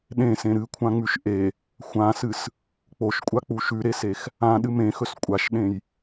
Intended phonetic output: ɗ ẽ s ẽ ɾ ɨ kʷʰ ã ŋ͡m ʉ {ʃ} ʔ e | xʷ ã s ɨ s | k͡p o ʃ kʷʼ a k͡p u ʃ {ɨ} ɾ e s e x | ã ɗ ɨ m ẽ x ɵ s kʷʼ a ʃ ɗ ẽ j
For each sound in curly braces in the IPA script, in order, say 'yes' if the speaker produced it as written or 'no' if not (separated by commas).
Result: yes, no